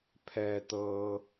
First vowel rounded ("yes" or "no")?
no